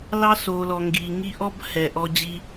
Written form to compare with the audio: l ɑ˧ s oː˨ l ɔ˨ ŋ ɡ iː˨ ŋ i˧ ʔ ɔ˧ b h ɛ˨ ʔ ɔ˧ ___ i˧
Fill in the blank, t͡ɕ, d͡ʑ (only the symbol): d͡ʑ